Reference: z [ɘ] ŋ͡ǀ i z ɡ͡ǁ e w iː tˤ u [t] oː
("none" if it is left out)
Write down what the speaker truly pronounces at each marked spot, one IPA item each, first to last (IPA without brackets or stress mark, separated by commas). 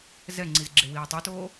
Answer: ɛ, t